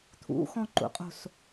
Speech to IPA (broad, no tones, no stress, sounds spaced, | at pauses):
t̪ʰ ṵ x ɔ̃ ǃ ṵ qʼ o̤ s